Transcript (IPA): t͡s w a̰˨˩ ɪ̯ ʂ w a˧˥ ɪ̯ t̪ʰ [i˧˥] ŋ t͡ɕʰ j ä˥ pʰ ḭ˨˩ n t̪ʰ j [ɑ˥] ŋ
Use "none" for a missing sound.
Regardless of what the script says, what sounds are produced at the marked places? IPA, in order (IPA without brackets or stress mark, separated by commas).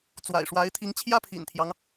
i˧˥, ɑ˦